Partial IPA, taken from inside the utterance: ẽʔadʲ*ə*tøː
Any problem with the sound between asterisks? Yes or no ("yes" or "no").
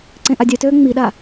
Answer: yes